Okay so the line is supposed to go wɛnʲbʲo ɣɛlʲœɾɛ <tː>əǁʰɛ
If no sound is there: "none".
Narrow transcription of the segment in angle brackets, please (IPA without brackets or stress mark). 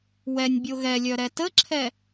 t